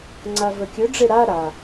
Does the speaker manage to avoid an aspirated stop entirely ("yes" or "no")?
yes